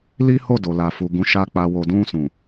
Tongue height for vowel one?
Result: high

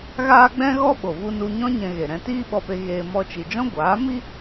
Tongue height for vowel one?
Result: low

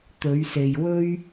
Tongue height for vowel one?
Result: mid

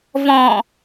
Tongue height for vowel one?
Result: mid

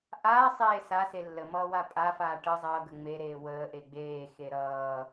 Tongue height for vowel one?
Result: low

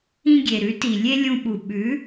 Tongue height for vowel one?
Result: high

